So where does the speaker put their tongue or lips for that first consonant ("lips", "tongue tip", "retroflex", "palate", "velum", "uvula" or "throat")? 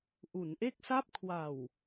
throat